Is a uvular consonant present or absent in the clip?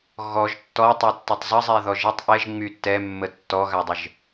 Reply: absent